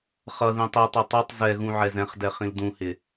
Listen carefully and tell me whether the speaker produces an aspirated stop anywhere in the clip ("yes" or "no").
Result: no